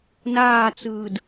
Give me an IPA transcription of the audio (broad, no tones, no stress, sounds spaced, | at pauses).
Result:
n aː t͡s ɯː d